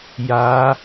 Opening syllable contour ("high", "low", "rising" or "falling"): rising